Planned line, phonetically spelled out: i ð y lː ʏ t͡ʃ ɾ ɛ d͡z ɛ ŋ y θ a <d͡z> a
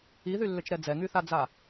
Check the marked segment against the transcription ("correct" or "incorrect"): correct